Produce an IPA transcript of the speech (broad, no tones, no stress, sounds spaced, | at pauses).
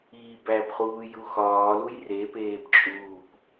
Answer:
iː b æ b χ uː j u x ɒː l u j r e p eː b t͡ʃʼ uː p